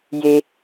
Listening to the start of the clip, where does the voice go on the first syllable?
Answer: low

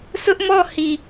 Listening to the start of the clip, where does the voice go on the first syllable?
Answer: high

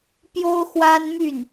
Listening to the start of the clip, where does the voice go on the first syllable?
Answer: high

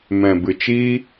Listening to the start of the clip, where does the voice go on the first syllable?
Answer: low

